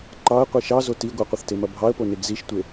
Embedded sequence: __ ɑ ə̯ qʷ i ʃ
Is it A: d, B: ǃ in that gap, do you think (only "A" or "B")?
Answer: B